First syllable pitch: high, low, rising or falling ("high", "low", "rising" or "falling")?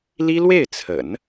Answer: high